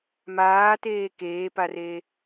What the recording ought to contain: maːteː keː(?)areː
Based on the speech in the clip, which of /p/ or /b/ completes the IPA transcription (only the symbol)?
p